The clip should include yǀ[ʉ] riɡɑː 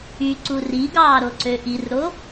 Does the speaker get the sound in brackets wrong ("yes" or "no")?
yes